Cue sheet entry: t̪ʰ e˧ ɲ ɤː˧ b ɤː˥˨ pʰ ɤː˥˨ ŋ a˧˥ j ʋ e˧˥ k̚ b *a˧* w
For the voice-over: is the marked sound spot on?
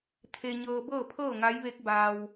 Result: no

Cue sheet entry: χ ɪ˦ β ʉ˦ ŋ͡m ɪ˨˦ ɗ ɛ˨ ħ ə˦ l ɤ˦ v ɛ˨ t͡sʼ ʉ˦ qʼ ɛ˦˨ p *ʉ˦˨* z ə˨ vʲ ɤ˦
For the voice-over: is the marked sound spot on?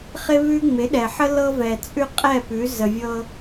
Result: no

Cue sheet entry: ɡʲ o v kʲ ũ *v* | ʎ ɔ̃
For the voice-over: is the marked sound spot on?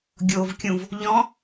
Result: yes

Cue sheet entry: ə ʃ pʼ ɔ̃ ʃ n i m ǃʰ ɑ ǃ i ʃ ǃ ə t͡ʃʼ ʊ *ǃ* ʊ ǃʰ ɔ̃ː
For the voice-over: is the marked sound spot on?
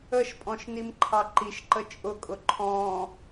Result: no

